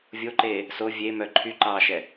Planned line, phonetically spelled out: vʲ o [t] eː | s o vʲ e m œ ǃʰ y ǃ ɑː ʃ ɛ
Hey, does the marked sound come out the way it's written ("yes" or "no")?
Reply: no